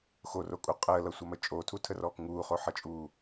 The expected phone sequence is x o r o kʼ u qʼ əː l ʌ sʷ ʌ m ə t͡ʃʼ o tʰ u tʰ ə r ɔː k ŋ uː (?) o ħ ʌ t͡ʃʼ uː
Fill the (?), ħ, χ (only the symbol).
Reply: χ